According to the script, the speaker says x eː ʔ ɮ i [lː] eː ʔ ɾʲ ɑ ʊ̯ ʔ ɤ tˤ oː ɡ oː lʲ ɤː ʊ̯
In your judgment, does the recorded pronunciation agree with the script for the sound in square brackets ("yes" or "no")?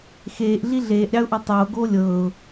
no